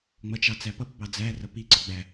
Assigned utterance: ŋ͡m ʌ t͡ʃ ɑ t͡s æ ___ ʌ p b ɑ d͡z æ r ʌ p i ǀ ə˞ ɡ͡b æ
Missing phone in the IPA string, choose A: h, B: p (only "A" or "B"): B